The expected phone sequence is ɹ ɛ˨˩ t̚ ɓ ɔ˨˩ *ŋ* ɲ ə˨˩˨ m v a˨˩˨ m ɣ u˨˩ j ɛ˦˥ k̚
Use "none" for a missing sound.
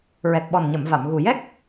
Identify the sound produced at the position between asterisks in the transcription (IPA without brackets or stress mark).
n